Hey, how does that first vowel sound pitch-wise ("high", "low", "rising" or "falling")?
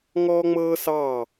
high